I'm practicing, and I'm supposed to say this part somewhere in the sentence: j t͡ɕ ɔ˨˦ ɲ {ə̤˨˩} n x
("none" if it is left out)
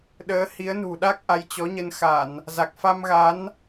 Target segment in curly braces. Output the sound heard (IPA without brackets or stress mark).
ə˧